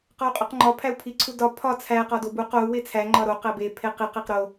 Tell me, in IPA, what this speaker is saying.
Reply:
q ɒ u̯ qʼ u q ŋ͡ǃ ɒ pʰ æ u̯ pʰ i ǀʰ u d ɒ pʰ ɒ t͡sʰ æ q ɒ d o b u q o u̯ w e t͡sʰ æ ŋ͡ǃ ɒ ɾ o q æ b e pʰ e q i q e q ɾ o

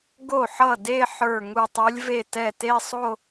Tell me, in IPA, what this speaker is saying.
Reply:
ɡ o˥˩ ħ ʌ˥˩ d e˥˧ ħ ə˞˧˩ ŋ u˧˩ tˤ u˨˦ lʲ v e˥˩ t ɛ˥˩ t e˥˧ sˤ o˥˧

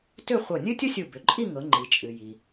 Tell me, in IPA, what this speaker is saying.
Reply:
t ʏ˥˧ χʷ ɤ˧˩ nʲ ɨ˥ tʲ ʊ˥ sʲ u˧˩ b ʏ˩˧ ǃʼ i˥˧ ŋ ɤ˩˧ ŋ͡ǃ i˩ t͡ʃʼ ɨ˩ j i˩

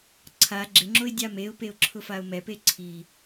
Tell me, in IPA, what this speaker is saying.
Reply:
ǀʰ a ɡ͡ǁ ɪ ŋ͡ǁ o ɪ̯ dʲ a m e ʊ̯ p e ʊ̯ ǁʰ ʊ f a ʊ̯ m ɛ p e ǀʰ i

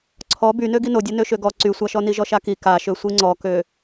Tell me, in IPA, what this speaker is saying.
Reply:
ǀʰ ɔ b y n ø ɡ i n o dʲ a n ø ʃ ø ɡ ɔ ǀ y sʷ a ʃ ɔ n i ʒ ɔ ʃ a k i k a ʃ ø sʷ i ŋ͡ǀ ɔ k ø

